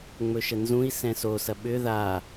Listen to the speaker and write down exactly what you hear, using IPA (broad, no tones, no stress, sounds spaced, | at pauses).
ŋ͡m ɵ ʃ ə n z ũ i̯ s ɛ̃ s o s ɐ ɓ ʏ ð a